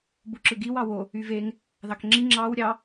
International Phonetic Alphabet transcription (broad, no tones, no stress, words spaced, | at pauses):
buǁɯɡiw ɑwo | yveŋ | ðɑkŋ͡ǁi ŋ͡ǁɑw ɾʲɑ